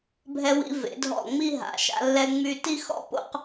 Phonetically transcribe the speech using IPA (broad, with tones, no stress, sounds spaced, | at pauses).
bʱ ɛ˧ w ḭ˧ v ḛ˩˧ dʱ ɔ̰˧˩ ŋ͡m i˥˧ ɦ a̰˩˧ ʃ a̰˧ lː ɛ˧ ŋ͡m y˧˩ t i˥˧ x ɔ̰˥ p o̰˥˧ q